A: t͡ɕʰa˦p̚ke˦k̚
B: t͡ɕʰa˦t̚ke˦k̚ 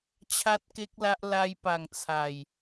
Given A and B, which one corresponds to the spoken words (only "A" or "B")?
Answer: B